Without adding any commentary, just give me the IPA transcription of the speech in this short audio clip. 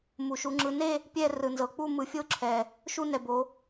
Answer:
mu˩ʃu˩˧ŋ͡ǁɯ˩˧ne˥˧ | pʲɛ˥˧rɯ˩nzɤ˩˧ k͡pu˥˧mɯ˩˧fʲo˥˧ ǁʰɛ˩ | ʃu˥˧nɛ˩bo˩˧

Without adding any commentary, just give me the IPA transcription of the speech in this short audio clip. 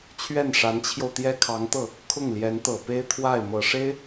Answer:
t͡ɕʰɥɛ˥˩nʂa˧˥nt͡ɕʰjo˧ʊ̯ t̪jɛ˥kʰɑ˧˥ŋt̪ɤ˥˩ | kʰʊ˥˩ŋljɛ˧˥nt̪ɤ˨˩pe˥ɪ̯ t̪ʰwa˥˩ɪ̯ mɤ˨˩ʂe˥ɪ̯

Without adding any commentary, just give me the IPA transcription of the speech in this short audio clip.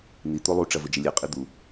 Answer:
n̪i t̪olˠu ʈ͡ʂɐvɵd͡ʒɐlʲɨ qʼid̪u

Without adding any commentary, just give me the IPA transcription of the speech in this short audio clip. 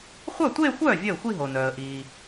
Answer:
χʷœ˥˩tʷeː˥˧xʷœː˥˩ vʲœ˥˩ʊ̯xʷi˥˧ɦo˩nœː˩ə̯ ʔiː˩

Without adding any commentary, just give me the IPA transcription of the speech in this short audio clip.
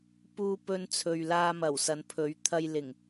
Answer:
puː˧ pɵ˧nt͡sʰɵ˨ɥlaː˧ mɐ˨˩wsɐ˨˧npʰɵ˨˥ɥ t̪ʰɐ˧jlɪ˨˩ŋ

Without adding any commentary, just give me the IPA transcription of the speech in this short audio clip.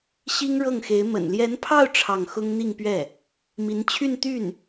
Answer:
ɕi˥ŋɻɤ˥˩ŋxe˧˥ɪ̯ mə̰˨˩nljɛ˧˥npʰɑ˥˧ʊ̯ ʈ͡ʂʰɑ˥˩ŋ xʊ˥ŋ n̪i˥˧ŋpɥɛ˥˩ | mi˧˥nt͡ɕʰy˥˧n t̪y˥˩n

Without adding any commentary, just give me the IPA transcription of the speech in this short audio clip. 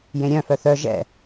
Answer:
jẽɾʲœ̃ fœθœ ʒɛ̰

